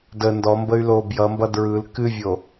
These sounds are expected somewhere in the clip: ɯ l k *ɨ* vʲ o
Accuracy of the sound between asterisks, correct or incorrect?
correct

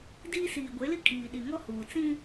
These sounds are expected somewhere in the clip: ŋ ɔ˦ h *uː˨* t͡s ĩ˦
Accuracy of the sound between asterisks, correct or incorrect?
correct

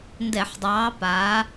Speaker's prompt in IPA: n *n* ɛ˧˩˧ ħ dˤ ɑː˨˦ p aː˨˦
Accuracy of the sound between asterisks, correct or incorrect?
incorrect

